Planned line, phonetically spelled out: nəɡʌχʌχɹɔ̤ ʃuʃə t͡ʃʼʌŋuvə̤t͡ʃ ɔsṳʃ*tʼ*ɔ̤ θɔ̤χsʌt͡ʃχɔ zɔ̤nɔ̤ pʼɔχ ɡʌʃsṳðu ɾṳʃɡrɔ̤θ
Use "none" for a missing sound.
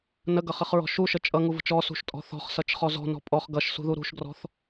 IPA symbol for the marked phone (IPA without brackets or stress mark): tʼ